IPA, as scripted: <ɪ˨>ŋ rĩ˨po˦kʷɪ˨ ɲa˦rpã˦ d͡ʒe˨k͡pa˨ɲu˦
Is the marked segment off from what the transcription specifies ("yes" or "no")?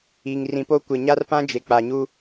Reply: yes